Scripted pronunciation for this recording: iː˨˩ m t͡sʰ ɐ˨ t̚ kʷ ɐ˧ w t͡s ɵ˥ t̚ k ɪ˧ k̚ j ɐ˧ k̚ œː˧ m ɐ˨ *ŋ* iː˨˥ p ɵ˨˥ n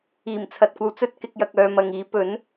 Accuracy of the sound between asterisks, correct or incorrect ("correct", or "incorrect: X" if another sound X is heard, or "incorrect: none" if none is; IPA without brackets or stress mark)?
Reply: correct